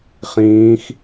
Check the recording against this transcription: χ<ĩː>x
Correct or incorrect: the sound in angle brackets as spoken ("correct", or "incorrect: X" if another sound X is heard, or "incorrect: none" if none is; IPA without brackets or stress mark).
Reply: correct